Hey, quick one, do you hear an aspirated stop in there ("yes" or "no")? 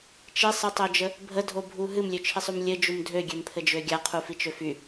yes